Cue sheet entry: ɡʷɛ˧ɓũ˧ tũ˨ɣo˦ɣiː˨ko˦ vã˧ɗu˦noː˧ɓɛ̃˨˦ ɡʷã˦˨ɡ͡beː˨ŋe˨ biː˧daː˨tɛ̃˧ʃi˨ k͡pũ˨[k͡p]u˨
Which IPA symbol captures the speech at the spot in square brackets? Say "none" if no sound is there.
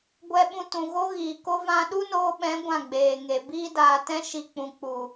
k͡p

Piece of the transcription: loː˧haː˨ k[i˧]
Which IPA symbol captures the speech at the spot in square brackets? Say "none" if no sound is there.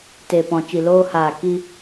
i˧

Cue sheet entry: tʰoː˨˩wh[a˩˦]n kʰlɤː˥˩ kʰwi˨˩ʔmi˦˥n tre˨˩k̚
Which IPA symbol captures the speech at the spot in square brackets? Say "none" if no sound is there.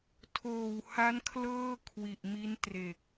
a˦˥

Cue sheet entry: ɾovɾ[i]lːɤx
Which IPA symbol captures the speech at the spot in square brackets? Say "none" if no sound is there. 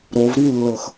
i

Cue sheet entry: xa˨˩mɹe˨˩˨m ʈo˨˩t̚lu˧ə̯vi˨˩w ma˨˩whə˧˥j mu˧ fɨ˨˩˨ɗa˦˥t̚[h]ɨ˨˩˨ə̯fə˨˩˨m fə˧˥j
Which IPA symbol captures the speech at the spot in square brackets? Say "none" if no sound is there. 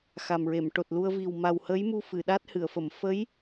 h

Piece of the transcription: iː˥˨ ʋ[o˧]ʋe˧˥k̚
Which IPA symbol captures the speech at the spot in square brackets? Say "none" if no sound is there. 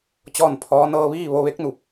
o˧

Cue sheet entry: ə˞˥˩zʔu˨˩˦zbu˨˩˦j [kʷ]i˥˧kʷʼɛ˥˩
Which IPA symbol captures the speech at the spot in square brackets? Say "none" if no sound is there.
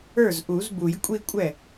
kʷʼ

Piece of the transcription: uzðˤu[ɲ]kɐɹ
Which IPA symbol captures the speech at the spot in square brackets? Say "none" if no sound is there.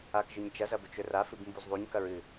ɲ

